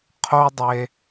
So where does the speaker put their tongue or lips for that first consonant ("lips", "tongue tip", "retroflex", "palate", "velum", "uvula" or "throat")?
uvula